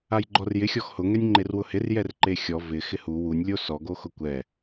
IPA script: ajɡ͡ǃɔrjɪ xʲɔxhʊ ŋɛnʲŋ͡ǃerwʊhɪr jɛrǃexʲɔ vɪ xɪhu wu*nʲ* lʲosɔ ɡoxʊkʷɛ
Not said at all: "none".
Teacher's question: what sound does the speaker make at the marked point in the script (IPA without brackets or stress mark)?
nʲ